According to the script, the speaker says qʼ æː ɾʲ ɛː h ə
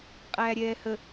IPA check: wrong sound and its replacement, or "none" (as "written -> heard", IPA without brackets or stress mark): none